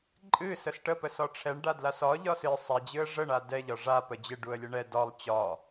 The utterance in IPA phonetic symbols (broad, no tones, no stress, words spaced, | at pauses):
ǃʼɨ səsʈə pəsɒʈ͡ʂʰɛɳɖa dlasɒ ʎɒsɨ sˤad͡ʑɨə̯ ʐəɳa dɛʎɒ ʐa pəd͡ʑɪ ɖuə̯lʲəɳɛ dɒlˠ t͡ɕɒ